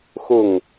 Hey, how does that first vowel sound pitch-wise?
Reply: falling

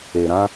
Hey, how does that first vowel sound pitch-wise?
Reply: low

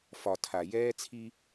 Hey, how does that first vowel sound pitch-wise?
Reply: low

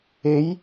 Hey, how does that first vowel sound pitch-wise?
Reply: rising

